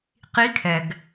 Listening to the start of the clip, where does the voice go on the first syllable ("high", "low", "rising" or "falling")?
rising